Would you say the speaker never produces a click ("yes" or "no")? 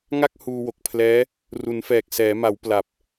yes